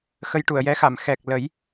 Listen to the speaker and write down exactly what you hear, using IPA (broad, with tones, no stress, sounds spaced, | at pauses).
x ə˧ j ʈ u˨˩˨ ə̯ j ɛ˧˥ x a˨˩˨ m x ɛ˨˩ k̚ l ə˨˩˦ j